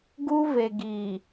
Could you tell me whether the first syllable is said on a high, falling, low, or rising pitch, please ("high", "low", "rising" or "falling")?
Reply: high